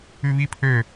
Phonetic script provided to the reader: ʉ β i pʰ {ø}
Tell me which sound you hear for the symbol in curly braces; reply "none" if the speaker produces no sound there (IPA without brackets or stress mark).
ø